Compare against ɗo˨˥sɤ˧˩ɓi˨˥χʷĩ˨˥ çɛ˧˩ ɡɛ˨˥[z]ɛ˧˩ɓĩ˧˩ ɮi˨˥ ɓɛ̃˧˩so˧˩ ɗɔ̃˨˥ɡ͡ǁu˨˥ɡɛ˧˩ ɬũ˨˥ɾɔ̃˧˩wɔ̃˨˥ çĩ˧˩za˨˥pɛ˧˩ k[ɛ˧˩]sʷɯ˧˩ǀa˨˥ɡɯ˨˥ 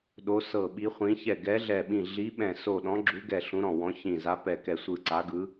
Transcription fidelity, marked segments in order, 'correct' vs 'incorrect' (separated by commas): incorrect, correct